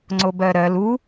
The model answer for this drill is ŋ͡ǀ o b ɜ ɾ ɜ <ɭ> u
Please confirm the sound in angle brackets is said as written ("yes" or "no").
no